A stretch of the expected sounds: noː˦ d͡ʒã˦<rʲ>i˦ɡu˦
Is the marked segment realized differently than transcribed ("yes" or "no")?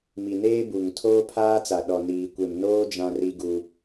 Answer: yes